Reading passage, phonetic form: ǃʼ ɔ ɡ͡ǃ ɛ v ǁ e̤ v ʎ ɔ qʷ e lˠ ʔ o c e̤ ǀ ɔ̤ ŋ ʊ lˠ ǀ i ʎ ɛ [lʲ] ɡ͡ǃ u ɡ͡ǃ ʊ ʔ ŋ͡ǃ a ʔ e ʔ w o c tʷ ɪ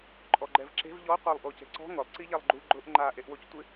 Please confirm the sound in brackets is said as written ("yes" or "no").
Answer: no